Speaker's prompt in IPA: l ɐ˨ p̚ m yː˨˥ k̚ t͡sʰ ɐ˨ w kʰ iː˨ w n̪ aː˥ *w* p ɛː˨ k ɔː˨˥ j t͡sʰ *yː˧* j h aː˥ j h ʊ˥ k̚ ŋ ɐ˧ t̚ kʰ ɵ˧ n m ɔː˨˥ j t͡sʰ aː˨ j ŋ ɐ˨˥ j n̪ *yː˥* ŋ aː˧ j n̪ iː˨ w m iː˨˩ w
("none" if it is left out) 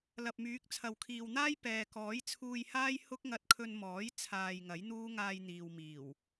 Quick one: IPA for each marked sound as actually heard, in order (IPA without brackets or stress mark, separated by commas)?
j, uː˧, uː˥